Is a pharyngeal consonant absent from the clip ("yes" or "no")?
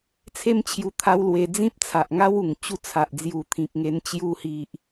yes